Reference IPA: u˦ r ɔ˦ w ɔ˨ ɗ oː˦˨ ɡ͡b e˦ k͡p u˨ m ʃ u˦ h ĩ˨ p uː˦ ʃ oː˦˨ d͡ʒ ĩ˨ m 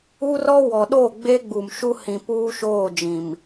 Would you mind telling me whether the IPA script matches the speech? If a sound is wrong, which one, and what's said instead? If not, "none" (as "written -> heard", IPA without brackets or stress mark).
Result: k͡p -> ɡ͡b